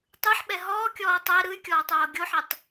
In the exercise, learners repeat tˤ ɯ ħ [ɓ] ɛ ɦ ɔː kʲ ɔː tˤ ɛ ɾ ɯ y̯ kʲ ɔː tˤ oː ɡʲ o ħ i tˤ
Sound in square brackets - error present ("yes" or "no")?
no